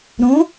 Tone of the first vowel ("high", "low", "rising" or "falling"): rising